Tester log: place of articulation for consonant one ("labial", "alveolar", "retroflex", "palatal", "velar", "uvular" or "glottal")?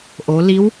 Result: glottal